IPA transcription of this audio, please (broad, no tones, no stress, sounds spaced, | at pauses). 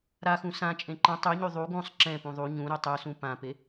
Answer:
ɾ a x ũ s ã t͡ʃʼ ẽ ǃ ə̃ tˤ y ɲ y ðˤ u ɡ ũ sˤ ǁ ɛ̃ p ũ ðˤ u ɲ ũ ɾ y tˤ y s ũ p ã p e